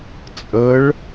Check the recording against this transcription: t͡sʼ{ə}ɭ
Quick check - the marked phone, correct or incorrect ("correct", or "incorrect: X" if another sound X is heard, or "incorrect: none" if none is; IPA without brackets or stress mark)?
correct